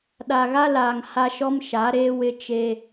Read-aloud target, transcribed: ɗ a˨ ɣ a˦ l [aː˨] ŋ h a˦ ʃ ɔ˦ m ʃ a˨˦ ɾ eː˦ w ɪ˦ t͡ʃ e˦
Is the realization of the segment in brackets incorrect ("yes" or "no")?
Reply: no